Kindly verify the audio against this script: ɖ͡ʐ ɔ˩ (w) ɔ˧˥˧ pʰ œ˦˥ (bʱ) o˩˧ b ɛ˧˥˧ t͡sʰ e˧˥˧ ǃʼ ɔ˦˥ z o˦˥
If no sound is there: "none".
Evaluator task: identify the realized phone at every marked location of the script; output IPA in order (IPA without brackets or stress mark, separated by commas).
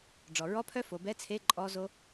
ɹ, f